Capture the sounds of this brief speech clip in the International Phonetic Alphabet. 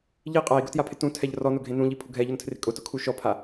ʎi qʼai̯ɡʊtjapʰɪ tũtʰɛʎ rɔnʊɡʱẽ nũʎipʰʊ ɡʱɛʎʊntʰrɪ kʼʊtʊkʰu ʃɔpʰa

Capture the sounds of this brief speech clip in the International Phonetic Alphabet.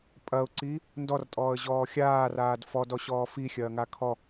pʼɐʊ̯ǀi | ndɔrtʼɔːə̯ʑɔː xʲaːraːd fɔdɔɕɔː fixʲɐːŋa kʰɔ

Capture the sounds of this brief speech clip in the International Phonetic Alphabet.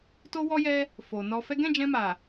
to˦ wɔ˦jɛ˦ | fo˨nɔ˧fɛ˦ ɡɛ̃˦˨d͡ʒɛ̃˧ma˨

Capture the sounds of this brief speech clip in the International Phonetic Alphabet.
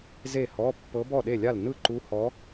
ze˥˨hɔ˧˥˧ pːɤ˧˥bɔ˥˨ɗe˥˨lʲa˥˨l nɯ˥˨ǃu˧˥hɔ˧˥

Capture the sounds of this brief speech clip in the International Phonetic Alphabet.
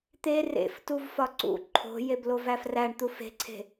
t̪e rḛftuv fɒǀṵ ǃʰo̤jeblov æfræɳt̪u fe̤ǀʰe̤

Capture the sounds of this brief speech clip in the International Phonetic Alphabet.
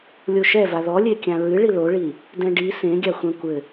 lʲoʃɛva ðɔlʲekʲã ɹɨɭi loɭi | dɛ̃ɖi sẽɡʲa xʷɛ̃kʷɘ

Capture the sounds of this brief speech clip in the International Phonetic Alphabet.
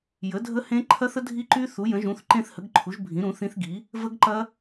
jə˩˥dʱə˦˥hẽ˦˥ ǃʰɐ˦˥θə˦˥dʱi˦˥ǃy˦˥ θu˩˥jə̃˩˥ʒũ˩˥θ ǃẽ˦˥θhə˩˥ɡǃʰu˩˥ʒbʱĩ˩˥ ɾũ˩˥θĩ˦˥θɡi˩˥ | və˦˥ɡǃɐ˦˥

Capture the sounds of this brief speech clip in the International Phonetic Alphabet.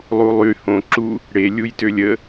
lˠulˠy hõǁu | ɽelʲujtølʲ ə

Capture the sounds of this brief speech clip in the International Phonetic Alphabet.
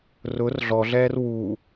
rʊr ɮɔɮɛːr wu

